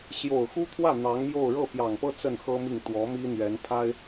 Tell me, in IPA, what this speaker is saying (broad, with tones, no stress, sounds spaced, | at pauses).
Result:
ɕ j o˨˩ ʊ̯ x u˥ t̪ʰ w ä˥˩ n̪ ɑ˧˥ ŋ m j o˥˧ ʊ̯ ɻ ɤ˥˩ p j ɑ˨˩ ŋ p ɤ˥ t͡s ə˥˩ n x ɤ˥ m i˥˩ ŋ t̪ w ɔ˧˥ m i˥ n̪ ɥ ɛ˧˥ n pʰ a˥ ɪ̯